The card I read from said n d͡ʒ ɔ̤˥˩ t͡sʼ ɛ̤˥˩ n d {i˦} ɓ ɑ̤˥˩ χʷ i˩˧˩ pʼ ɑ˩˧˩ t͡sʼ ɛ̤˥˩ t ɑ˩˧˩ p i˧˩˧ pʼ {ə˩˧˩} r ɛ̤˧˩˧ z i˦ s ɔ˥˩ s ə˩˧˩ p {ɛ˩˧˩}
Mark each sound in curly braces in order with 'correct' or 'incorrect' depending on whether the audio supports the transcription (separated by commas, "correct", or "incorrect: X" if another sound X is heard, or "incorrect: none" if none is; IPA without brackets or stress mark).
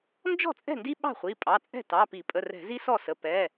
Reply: correct, correct, correct